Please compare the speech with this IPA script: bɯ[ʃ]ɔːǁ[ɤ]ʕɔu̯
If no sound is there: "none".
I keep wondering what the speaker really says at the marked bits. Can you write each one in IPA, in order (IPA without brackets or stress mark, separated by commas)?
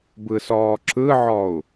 s, ɯ